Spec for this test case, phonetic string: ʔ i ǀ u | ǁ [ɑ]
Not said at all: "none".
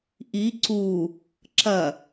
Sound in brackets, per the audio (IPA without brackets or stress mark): ɐ